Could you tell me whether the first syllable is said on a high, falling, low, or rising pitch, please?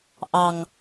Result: low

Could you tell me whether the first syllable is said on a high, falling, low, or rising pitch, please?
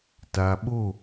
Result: low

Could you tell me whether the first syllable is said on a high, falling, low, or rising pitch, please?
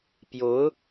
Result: rising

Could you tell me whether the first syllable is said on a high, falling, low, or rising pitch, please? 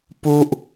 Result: low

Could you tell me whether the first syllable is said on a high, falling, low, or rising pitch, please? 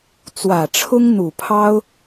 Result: low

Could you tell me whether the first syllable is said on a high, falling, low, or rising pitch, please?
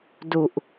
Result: low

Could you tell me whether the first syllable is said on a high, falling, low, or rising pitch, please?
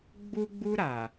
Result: high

